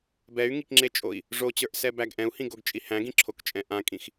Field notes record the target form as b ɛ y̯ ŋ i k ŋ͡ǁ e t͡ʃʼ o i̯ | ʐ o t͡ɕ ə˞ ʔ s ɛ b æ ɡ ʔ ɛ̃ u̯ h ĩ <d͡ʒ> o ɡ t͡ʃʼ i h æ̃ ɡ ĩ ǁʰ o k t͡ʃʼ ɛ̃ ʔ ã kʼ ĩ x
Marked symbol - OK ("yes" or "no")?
no